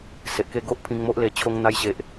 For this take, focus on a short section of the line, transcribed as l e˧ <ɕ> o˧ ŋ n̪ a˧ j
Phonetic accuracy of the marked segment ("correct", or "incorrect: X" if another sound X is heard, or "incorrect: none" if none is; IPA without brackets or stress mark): incorrect: t͡ɕʰ